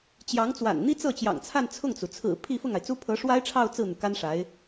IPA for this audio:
t͡ɕjɑ˧˥ŋt͡swa̰˨˩n n̪i˥t͡sɤ˥˩t͡ɕjɑ̰˨˩ŋt͡sʰa˥˧n t͡sʰʊ˥˩ŋt͡su˩ t͡sʰɹ̩˨˩ pʰi˥˧fʊ˥˩ŋa˩ɪ̯t͡su˥ pʰɤ˧˥ʂwa˥ɪ̯ʈ͡ʂʰɑ˥˧ʊ̯ t͡sɹ̩˥˩n̪u˩ ka˥nʂa˧˥ɪ̯

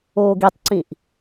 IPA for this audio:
oːɡitˤǀĩʔ

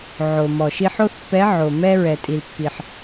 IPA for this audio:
ʕo˩ mɔ˩ʃi˧ ħo˥θpːɛ˧˥ʕo˩ mɛ˥ ɹɛ˩tʼi˩lpːi˩ħ

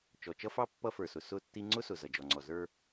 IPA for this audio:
t͡ʃɔ˨t͡ʃʌ˦fɑ˦ pːʌ˦fə˞˨sʊ˨ sʊ˦˨tːi˦ ŋ͡ǀʊ˦sʊ˨ zʌ˨d͡ʒɔ˨ŋ͡ǀɔ˨ zə˞˦

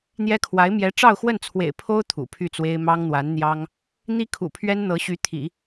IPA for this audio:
n̪jɛ˥ kʰwa˧˥ɪ̯ mjɛ˧˥ʈ͡ʂɑ˥˧ʊ̯xwə˥˩nt͡sʰwḛ˨˩ɪ̯ pʰo˥ʊ̯ t̪ʰṵ˨˩pʰy˥˩t͡swe˥ɪ̯ mɑ˥ŋn̪wa˧˥n n̪jɑ˥ŋ | n̪i˥kʰṵ˨˩pʰɥɛ˥n n̪ɤ˧˥ɕy˧˥ t̪ʰḭ˨˩˦

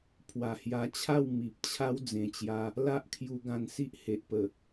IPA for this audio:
pʰwa˨˩hja˧t͡ɕʰa˥˧w mi˨p̚t͡ɕʰa˦w d͡zẽ˨˩t͡ɕja˧ | la˦ʔkʰju˧ ɡã˧nsi˦ʔ he˨ʔpə˨˩

